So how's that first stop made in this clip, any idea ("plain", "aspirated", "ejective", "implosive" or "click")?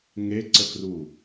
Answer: click